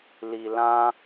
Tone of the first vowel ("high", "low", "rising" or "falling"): low